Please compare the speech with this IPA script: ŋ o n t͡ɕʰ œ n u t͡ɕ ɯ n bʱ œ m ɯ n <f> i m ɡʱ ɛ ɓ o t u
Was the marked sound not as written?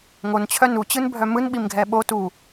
yes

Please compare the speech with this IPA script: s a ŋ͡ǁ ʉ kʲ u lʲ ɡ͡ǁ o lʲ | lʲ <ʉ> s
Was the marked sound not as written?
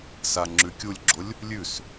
no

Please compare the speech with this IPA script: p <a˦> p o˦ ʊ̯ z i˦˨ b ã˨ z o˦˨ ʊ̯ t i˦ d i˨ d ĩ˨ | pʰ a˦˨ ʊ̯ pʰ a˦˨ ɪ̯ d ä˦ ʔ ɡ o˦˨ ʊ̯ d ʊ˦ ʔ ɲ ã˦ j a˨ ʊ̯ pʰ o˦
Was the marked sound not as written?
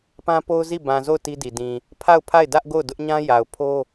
yes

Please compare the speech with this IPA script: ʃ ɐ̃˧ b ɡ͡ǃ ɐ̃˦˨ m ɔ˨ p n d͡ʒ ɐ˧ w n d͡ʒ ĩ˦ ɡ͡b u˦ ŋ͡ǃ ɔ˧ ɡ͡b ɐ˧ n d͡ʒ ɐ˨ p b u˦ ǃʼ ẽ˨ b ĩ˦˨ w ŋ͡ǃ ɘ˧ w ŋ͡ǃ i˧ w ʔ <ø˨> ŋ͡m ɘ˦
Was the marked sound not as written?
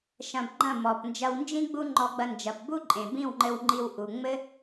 yes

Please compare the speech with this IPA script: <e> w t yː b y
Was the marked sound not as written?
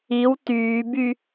yes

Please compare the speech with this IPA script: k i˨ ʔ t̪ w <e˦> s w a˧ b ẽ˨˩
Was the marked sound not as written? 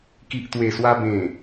yes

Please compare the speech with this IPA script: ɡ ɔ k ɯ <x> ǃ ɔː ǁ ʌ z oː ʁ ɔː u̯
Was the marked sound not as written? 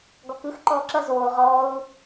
no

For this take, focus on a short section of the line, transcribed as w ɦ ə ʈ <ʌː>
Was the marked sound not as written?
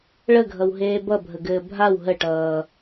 no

